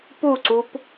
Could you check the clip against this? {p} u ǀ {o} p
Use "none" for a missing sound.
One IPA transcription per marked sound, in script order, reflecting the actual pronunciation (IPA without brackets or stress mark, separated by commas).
p, u